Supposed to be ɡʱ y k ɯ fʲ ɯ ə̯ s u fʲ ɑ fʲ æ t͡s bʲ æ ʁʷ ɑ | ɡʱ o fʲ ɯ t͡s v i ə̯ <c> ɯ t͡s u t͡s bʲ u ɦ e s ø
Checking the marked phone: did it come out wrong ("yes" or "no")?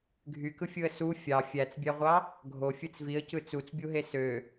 no